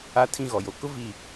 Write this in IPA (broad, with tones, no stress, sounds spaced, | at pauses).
a˦ tʰ ĩ˦ ɣ ɔ˨ j o˨ k ʊ˦ v i˨